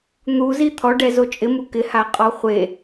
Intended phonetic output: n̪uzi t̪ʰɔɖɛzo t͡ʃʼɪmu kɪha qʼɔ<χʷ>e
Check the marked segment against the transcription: correct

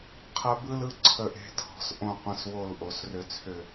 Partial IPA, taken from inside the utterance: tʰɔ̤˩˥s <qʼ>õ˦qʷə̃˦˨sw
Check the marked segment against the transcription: incorrect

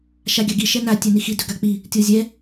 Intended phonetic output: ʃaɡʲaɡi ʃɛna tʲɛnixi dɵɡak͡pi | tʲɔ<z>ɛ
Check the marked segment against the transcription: incorrect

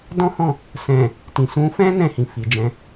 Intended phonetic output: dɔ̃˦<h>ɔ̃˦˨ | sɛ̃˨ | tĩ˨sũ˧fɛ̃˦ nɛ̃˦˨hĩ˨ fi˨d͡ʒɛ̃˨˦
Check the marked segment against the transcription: correct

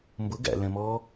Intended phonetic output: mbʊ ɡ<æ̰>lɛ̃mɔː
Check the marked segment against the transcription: correct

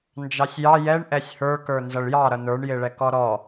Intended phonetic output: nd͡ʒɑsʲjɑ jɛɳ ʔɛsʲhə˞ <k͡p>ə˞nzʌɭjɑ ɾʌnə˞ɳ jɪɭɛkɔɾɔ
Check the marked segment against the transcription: incorrect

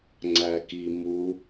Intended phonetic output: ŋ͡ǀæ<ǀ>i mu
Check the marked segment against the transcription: incorrect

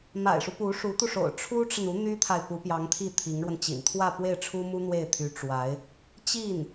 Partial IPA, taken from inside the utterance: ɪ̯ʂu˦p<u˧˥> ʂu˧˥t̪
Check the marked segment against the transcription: correct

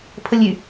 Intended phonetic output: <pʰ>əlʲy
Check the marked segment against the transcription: correct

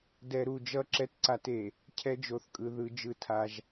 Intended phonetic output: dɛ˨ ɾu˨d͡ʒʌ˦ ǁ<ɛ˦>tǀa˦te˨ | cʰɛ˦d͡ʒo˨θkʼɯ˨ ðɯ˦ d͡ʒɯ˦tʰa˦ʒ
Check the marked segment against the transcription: correct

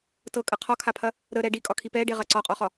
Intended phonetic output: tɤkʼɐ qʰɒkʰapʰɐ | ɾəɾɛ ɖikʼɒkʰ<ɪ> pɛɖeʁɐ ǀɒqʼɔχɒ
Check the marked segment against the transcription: incorrect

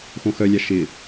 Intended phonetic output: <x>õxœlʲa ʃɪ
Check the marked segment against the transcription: correct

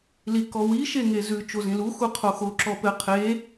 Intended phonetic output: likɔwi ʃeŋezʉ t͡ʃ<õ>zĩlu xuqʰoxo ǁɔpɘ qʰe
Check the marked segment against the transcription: incorrect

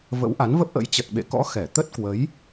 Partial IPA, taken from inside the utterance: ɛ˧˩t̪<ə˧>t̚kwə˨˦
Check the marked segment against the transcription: incorrect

